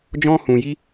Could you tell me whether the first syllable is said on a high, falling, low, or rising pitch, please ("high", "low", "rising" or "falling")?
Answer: high